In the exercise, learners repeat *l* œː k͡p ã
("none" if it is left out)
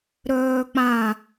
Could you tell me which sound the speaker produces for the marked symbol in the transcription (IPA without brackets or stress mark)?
ɾ